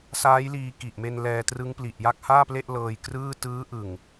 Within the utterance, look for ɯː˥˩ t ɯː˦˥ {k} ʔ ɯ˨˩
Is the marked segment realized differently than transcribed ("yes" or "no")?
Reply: yes